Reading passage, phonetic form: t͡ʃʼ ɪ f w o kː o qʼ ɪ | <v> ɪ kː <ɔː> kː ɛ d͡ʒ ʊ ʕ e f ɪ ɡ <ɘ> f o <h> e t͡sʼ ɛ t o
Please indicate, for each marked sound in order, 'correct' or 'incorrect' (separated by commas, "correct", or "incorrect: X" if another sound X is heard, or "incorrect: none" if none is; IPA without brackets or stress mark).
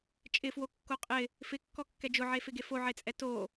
incorrect: f, incorrect: ɔ, incorrect: e, incorrect: ʕ